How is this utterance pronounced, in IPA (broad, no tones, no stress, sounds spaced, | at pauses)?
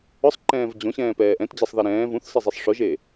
ʊ sˤ ǃ ɛ̃ː v d͡ʑ õ ɕ ɛ̃ː p ɛː ʔ ɛ̃ t d͡ʑ ɛ sˤ ð a ɾ ɛ̃ː v ũ θ s ɪ zˤ i sˤ ʂ ʊ ʒ e